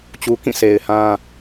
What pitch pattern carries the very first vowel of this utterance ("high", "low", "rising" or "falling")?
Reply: low